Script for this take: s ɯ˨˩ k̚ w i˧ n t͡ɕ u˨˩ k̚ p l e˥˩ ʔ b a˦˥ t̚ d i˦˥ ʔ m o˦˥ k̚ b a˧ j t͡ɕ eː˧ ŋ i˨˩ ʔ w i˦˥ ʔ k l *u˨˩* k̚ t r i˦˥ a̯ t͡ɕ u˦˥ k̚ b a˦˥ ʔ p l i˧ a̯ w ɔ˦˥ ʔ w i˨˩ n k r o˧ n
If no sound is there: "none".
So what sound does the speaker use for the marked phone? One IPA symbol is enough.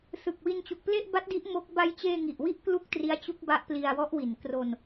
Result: u˥˩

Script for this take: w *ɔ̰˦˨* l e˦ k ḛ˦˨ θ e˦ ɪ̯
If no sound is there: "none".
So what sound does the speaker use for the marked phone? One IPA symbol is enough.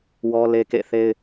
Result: ɔ˦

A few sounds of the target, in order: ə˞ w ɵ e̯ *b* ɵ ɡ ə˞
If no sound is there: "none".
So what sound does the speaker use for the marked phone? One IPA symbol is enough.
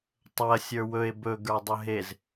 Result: b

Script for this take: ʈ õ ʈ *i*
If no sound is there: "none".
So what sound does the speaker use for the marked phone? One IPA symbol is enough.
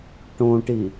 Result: i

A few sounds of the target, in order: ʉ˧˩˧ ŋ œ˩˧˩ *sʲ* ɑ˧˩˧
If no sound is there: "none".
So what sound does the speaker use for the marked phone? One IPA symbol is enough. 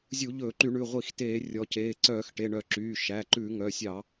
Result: sʲ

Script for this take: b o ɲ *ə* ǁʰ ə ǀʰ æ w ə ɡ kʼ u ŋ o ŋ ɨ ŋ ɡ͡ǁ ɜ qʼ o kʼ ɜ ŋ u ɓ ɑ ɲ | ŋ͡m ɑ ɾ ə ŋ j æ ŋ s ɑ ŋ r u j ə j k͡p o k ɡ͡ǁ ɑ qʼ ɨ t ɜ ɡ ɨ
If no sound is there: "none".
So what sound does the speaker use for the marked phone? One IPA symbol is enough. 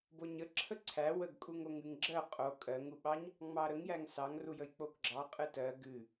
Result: ə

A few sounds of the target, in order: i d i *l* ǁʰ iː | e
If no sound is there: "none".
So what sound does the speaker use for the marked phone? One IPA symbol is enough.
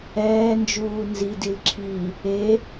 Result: l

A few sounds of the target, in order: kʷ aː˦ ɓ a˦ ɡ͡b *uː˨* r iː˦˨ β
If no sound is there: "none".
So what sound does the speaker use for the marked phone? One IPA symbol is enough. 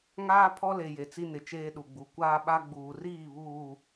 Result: uː˨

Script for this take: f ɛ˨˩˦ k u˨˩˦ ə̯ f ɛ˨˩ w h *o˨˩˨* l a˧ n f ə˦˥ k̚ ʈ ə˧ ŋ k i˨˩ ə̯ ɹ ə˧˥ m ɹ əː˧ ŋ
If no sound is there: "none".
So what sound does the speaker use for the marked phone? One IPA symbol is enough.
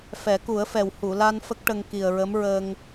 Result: u˨˩˨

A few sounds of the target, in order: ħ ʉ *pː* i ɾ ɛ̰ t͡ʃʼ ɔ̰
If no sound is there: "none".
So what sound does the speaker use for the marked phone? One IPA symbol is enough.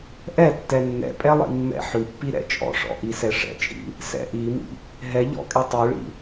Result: pː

